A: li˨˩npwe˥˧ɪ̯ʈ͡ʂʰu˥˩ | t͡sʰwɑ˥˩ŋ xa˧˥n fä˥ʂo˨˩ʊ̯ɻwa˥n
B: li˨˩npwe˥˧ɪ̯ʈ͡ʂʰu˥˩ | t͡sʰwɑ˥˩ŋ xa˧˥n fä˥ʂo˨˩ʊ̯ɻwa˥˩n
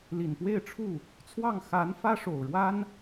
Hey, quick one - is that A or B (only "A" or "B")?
A